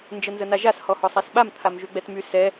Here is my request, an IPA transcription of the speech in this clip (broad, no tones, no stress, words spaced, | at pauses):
nd͡ʒənzənaʒas hɔhɔsˤasɓam t̪ʰamʒyɡ͡bɛtmy sɛ